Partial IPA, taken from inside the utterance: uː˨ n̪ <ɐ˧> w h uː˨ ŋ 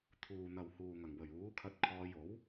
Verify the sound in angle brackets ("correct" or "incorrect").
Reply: incorrect